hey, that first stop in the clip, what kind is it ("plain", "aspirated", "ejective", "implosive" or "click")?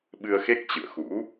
implosive